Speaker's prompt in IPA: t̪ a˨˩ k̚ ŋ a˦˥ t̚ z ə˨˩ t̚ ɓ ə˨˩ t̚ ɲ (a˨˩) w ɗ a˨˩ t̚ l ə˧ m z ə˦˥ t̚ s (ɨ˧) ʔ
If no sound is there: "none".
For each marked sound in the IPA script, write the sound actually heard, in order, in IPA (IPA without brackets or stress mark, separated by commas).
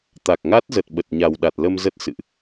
a˨˩, ɨ̰˧˨